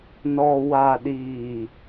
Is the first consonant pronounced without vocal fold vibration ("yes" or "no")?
no